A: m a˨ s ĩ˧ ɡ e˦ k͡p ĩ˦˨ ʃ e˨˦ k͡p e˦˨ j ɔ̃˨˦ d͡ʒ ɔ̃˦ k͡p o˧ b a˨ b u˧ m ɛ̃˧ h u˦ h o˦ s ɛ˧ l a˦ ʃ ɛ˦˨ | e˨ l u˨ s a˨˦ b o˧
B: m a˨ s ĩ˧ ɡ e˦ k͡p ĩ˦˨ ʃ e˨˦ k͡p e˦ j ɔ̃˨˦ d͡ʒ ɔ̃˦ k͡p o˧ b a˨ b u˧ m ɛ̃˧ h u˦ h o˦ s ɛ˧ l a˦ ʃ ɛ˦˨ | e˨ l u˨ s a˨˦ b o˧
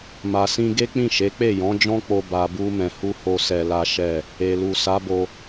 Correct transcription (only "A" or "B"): A